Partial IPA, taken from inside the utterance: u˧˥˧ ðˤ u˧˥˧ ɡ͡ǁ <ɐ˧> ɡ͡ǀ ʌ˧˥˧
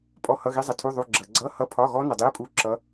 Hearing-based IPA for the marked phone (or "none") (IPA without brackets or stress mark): ɐ˧